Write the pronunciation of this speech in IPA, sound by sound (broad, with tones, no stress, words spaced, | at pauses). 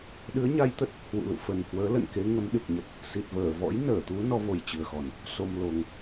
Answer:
ɗɨ˨˦ə̯ ɲa˧jt̪ə˦˥t̚ | hwṵ˧˨lṵ˧˨ fə˨˩nhwəː˨˦lə̰˧˨nke˨˦ ŋə˨˦mɗɨ˨˩k̚ɲə˨˩t̚ | si˨˩t̚vəː˧˩ vɔ̰˧˥jnəː˧˩t̪u˨˦ nɔ˨˦vo˨˩jt͡ɕɨ˨˩ə̯xɔ˨˩n | so˧m lo˧ŋ